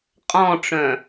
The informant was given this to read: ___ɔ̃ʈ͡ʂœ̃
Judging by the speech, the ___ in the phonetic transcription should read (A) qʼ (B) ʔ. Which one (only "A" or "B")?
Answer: A